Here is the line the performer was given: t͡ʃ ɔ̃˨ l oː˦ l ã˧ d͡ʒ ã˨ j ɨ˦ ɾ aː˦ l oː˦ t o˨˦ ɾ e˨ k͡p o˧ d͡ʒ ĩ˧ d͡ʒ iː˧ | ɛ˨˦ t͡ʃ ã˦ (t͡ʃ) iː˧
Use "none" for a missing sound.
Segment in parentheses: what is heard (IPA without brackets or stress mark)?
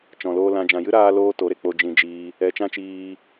t͡ʃ